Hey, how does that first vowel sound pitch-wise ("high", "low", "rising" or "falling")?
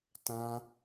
high